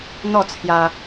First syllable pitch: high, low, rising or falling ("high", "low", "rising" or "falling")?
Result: falling